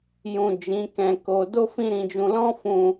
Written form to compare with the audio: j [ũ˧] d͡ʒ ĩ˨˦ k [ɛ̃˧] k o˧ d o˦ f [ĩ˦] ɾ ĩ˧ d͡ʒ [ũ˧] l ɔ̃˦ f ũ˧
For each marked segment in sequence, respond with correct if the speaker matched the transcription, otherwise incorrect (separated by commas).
incorrect, correct, correct, correct